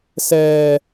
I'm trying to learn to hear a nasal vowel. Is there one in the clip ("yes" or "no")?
no